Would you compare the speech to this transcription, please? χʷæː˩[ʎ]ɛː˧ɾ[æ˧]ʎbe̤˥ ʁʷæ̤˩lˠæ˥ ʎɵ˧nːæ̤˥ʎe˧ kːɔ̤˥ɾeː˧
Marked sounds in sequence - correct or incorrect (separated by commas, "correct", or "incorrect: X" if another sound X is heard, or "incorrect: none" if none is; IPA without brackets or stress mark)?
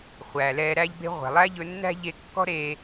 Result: incorrect: l, incorrect: æ˥